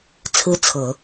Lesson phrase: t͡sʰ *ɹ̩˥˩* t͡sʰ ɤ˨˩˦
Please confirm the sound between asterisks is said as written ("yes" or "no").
no